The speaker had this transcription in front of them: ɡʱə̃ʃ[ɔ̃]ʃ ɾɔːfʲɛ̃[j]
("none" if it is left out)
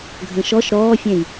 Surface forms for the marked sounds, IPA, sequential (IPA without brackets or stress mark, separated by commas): ɔ, j